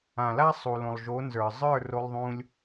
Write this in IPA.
ã˨ l a˦ sˤ u˨ l õ˨ lˠ ʒ o˨˦ n z ə˞˨ zˤ ə˞˦˨ r o˧ lˠ ðˤ ũ˧ lʲ

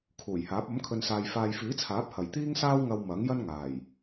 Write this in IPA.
kʰ uː˨˩ j h aː˨˥ p̚ ɐ˨˥ m kʰ ɵ˨ n s aː˨ j f aː˨ j f iː˨˥ t͡sʰ aː˨˥ p̚ h ɐ˨˩ j t̪ iː˥ ŋ s aː˥ w ŋ ɐ˧ w m ɐ˨˥ ŋ j ɐ˥ n ŋ aː˨˩ j

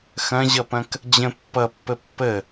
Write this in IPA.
x ɐ̃ ʑ ʌ p ɐ̃ k | d͡ʑ ə̃ pː ʌ pː ə pː ə

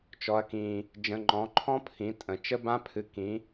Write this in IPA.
t͡ʃ ɔ˩˧ ɐ̯ k ĩ˩ | d͡ʒ ə̃˩˧ ŋ͡ǃ ɔ̃˩˧ ǃʰ ɔ̃˦˥ pʰ ĩ˩˧ tʼ ə̃˩ t͡ʃ ə˦˥ b ã˦˥ pʰ ɨ˩˧ k ĩ˩˧

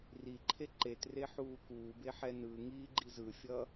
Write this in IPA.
r i ǃʰ e ǃ e t r e ħ uː k uː b e ħ ɛ n ɯ ŋ iː ɡ͡ǃ i z ɯ fʲ ʌː

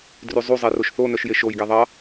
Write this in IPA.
d r y zˤ u zˤ e r o ʃ θ o n œ ʃ j e ʃ o j ɡ ɛ ðˤ ɑ

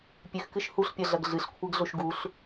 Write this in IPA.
pʲ ʉ x k ɨ ʃ h u ɬ pʲ ɐ ɮ ɐ ɡ ɮ ɨ ɬ kʷʰ e ɡ ɮ o ʃ ɡ u ɬ

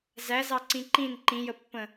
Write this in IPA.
z æ z ɑ ǀ ĩ ǃ ĩ n ǃ ĩ j ə pː ə̃

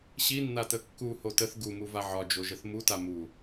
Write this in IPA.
ɕ i nː a t ə kː u h o t ə θ ɡ u m u v a ʕ ɒ d͡ʒ o ʒ ə θ m u t a m u

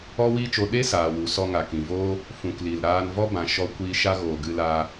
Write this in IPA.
ɔ˦ w iː˦ t͡ʃ o˧ ɗ e˦ s aː˨ w u˨ s ɔ˧ ŋ a˨ k ĩ˨ v oː˦ | f ũ˨ k l i˨ l ɾ aː˧ n v ɔ˦ b ã˧ ʃ ɔ˧ kʷ iː˧ ʃ a˦ ɣ oː˨ ɡ ɨ˧ l aː˧

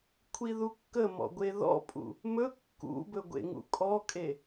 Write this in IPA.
kʷʰ i ð u kː ə m ɔ̰ ɡʷ e ð ɔ̰ pʼ ṵ | m ɵ kː ṵ b ɵ ɡʷ ḛ ŋ ṵ kʼ ɔ kʼ e

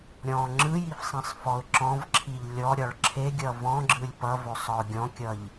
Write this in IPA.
ɾʲ ɔ̃ ŋ͡ǁ ɯ j i f sˤ ĩ sˤ f ɔ ʊ̯ ǁ ɔ̃ v ǁʰ i ʎ lʲ ɔ ɾʲ ɒ ɭ ǁʰ e ɡʲ ʌ v ɔ̃ ɡ͡ǁ ɯ lʲ p ʌ v ɵ sˤ ɒ ʊ̯ ɡʲ ɔ̃ kʲ ʌ ʎ

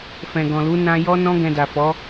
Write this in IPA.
f ɛ̃˨ ɡ ɔ̃˨ l u˨˦ n ã˧ j ɔ˦ n ɔ̃˦ ɡ ɛ̃˧ d a˨ f ɔ˨˦

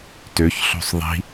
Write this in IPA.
t ø ç ɬ o̤ sˤ ðˤ i̤

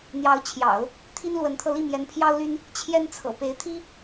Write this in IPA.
n̪ j ɑ˧˥ ʊ̯ t͡ɕʰ j ɑ̰˨˩˦ ʊ̯ | t̪ʰ i˥ n l w ə˧˥ n t̪ʰ ɤ˧ l i˥˩ m j ɛ˧˥ n pʰ j ɑ˥ ʊ̯ l y˥ n | t͡ɕʰ j ɛ˥ n t͡sʰ ɤ̰˨˩ p e˧˥ ɪ̯ t̪ʰ i˥

